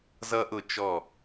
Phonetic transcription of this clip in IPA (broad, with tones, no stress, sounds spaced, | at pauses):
z ʌ˦ ʔ ʊ˦˨ t͡ʃ ɔ˦˨